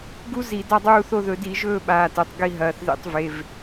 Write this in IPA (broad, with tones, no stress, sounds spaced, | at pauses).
ɡ u˦˥ z i˧˩˧ d a˦˨ dˤ uː˦˨ θ o˦˨ ð ɵ˧˩˧ d i˧˩˧ ʒ ɵː˦˨ ɓ aː˩˧˩ t e˩˧˩ tˤ ɡ i˦˨ ɦ ɐː˩˧˩ θ ð ḭ˧˩˧ tˤ v e˩˧˩ v